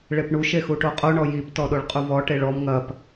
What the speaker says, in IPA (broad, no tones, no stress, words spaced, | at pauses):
ɭepɳu ʃexuʈoqʼo ɳɔjip tɔɗoɭqʼuvɔ ʈeɭɔm ŋɐp